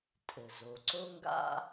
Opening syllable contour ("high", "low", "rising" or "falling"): low